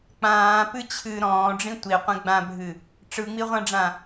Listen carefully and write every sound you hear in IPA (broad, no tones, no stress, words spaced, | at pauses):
k͡pãːpɨ t͡ɕʰɨ ɾɔ̃ːɖ͡ʐĩ tʷiqʷẽ ɡ͡bãbʱɨ | ʈ͡ʂɯŋ͡miʁʷãɖ͡ʐã